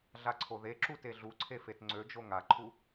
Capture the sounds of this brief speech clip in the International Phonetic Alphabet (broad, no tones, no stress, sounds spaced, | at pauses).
ɮ a ǀʰ o ð e ǁ u t e ɮ u ǀʰ e f e t ŋ͡ǀ ø d͡ʒ o ŋ a ǃʰ u